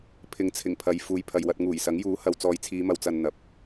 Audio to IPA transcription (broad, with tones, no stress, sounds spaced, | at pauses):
pʰ ɪ˨˥ ŋ t͡sʰ ɪ˨˩ ŋ pʰ ɐ˨ j f uː˨˧ j pʰ ɐ˨ j w ɐ˧ t̚ ŋ uː˨˩ j s ɐ˨˥ ŋ j uː˨˥ h ɐ˨ w t͡s ɔː˨ j t͡sʰ iː˨˧ m ɐ˨ w t͡s ɐ˨ n n̪ ɐ˨ p̚